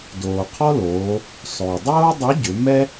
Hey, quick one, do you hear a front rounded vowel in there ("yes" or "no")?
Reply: yes